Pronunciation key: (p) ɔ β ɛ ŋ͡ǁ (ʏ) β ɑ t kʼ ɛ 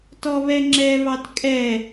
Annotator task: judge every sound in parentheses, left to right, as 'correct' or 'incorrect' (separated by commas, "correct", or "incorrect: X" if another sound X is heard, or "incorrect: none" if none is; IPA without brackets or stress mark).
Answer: incorrect: t, incorrect: ɛ